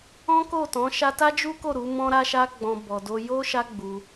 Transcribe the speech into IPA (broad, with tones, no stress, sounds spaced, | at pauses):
ɔ̃˦ k o˦˨ t ɔ̃˨˦ ʃ a˧ t a˦ d͡ʒ u˦ k o˦˨ ɾ u˨˦ m ɔ̃˦ ɾ a˦ ʃ a˦ ɡ͡b ɔ̃˧ b ɔ˨ d o˧ j o˦ ʃ a˦ ɡ͡b u˧